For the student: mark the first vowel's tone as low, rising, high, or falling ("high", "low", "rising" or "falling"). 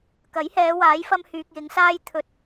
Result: rising